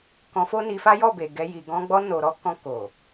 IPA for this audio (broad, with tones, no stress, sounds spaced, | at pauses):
k ɔ̃˧ f o˦ n i˧ f a˦ j ɔ˦˨ b e˨ ɡ ɛ˧ j i˨ ɡ ɔ̃˧ ɡ͡b ɔ˧ n o˨ ɾ ɔ˧ k ɔ̃˧ k o˨